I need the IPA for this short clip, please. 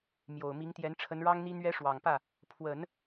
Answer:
m j o˨˩ ʊ̯ m i˧˥ ŋ t̪ j ɛ˧˥ n ʈ͡ʂʰ ə˧˥ n ɻ ɑ˥ ŋ n̪ i˥ n̪ ɥ ɛ˥ ʂ w ɑ˨˩ ŋ p ä˥˩ | pʰ w ə˨˩˦ n

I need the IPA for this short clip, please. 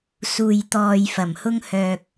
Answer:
s uː˨ j t̪ ɔː˨ j f ɐ˨˩ m h ʊ˧ ŋ h œː˨ k̚

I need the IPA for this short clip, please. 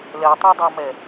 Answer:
l ɛ tˤ u dˤ a m ɛ

